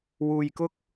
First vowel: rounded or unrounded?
rounded